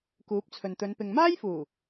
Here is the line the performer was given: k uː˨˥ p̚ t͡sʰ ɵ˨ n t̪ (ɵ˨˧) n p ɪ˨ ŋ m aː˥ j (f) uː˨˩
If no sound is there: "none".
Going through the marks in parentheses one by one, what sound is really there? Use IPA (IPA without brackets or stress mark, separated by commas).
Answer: ɵ˨˧, f